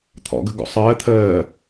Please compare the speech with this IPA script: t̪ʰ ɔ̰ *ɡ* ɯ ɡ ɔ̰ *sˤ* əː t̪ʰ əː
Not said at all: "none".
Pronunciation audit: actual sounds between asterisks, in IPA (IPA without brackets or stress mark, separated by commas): ɡ, sˤ